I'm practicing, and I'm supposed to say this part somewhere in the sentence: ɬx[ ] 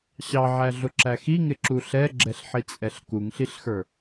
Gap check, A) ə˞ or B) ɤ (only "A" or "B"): A